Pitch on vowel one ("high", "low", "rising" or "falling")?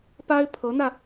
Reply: high